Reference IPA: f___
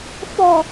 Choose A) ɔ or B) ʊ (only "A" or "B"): A